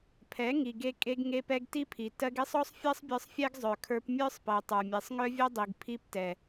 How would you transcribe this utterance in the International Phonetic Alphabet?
pʰ ɛ˨˦ ŋ i˨ ɡ e˧ kʼ e˧ ɡ ŋ e˧ p ɛ˧ ɡ t i˦ pʰ i˨ t ɜ˧ ɡ e˦ sˤ ɔ˦ sˤ fʲ ɜ˦ sˤ bʲ ə˞˧ sˤ fʲ ɛ˦ ɡ zˤ œ˨ kʰ ə˞˧ p mʲ ə˞˦ sˤ p ɜ˨ tˤ ə˞˨ mʲ e˨ sˤ ŋ œ˦ vʲ œ˦ dˤ i˨ ɡ pʰ i˦ p t ɛ˨

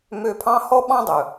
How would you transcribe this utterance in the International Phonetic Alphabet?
m ø˧ pʰ ɑ̃˦ h ɔ˦ ɓ ɑ̃˦ dˤ ɵ˨

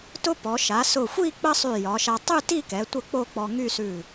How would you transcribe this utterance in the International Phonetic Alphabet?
t ʊ˥ p ɔ˩˧ ʃ a˩˧ s ʊ˧˩ xʷ i˥˧ k͡p ə˥ sˤ y˧˩ j ɒ˩˧ ʃ a˧ tˤ ʉ˥˧ t i˥˧ k ɛ˩˧ tʷ ə˥˧ k͡p o˥˧ k͡p ɔ˧ ŋ y˥˧ s ʉ˧˩

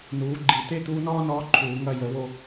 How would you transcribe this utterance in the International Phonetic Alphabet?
n uː˩˥ ɡ͡ǃ i˨˩˦ t̪ e˥ t̪ uː˧˥ n ɔː˥ n ɔː˧˥ ǃʰ uː˨˩˦ ŋ ɐ˦˨ j ə˨˩˦ w o˦˨

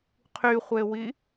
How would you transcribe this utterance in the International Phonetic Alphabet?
qʰ y χʷ e w i

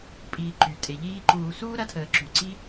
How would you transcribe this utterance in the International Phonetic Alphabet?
pʼ iː˨ ǃ y˩ tʼ e˩ ʎ iː˦ ǃ uː˨ s uː˥ ɾ ɐ˦ tʰ əː˨ ǁ y˩ ǀ i˥

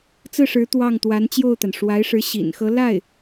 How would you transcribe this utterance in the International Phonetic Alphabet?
t͡s ɹ̩˥˩ ʂ ɻ̩˧˥ t̪ w ɑ˥˩ ŋ t̪ w a˧˥ n t͡ɕ j o˥˩ ʊ̯ t̪ a˩ n ʂ w a˧˥ ɪ̯ ʂ ɻ̩˧˥ ɕ ḭ˨˩ n x ɤ˧˥ l a˥˩ ɪ̯

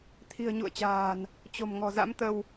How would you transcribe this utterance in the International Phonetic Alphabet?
t̪ʰ i̤˨˩ ə̯ ɲ ṵ˧˨ ə̯ t͡ɕ a̤ː˨˩ n | t͡ɕ o̤˨˩ m ŋ ɔ̤˨˩ z a̰˧˥ m t̪ ə˧ w

